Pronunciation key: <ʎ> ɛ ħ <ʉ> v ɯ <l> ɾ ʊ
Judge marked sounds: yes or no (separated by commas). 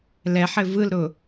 no, no, yes